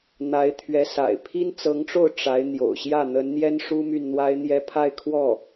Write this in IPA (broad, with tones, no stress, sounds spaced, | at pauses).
n̪ a˧˥ ɪ̯ t̪ʰ ɥ ɛ˧˥ s a̰˨˩ ɪ̯ pʰ i˥ n t͡s ɤ˧˥ ŋ ʈ͡ʂ o˥˩ ʊ̯ ʈ͡ʂ a˧˥ ɪ̯ n̪ j o̰˨˩ ʊ̯ ɕ j ä˥˩ n̪ ə˧˥ n n̪ j ɛ˥ n ʂ u˥ m y˥˩ n n̪ w a˥ ɪ̯ n̪ j ɛ˥ pʰ a˥˧ ɪ̯ kʰ w ɔ˥˩